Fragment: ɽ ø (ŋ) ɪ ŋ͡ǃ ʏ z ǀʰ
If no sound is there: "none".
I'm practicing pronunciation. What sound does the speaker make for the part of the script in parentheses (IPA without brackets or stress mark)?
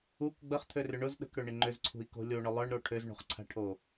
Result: ɳ